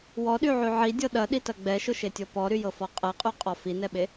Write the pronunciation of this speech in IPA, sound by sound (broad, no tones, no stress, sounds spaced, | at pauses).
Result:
w ɔ ɗ y ʕ y ʕ i dʲ ɤ ɗ ɐ ɗ i t ɐ ɡ͡b ɛ ʃ ʊ ʃ e tʲ ɤ p ɔ ɾ y j ɤ f ɔ qʼ ɛ qʼ y qʼ ɔ f i n ɛ ɓ e